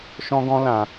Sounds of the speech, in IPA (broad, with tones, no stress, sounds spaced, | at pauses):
ʃ ɔ̃˦ ɡ ɔ̃˦ l ã˧